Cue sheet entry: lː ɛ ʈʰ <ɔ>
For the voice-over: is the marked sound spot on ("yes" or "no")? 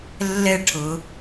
no